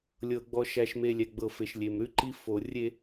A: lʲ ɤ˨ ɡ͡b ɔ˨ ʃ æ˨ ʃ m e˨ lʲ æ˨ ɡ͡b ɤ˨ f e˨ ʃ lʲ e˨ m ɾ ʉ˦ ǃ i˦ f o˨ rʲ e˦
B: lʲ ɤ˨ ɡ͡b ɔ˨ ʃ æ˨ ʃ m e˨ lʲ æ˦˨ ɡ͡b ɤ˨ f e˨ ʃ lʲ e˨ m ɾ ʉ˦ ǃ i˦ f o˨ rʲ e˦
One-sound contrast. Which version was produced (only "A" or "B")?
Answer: A